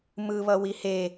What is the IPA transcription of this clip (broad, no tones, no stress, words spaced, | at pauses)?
mɯ βʌwihe